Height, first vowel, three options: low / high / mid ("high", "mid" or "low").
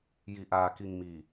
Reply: high